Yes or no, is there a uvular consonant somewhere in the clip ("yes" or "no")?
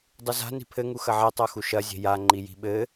no